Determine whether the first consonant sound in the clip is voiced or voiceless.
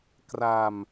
voiceless